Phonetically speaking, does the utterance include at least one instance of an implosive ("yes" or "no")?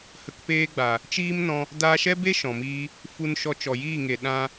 yes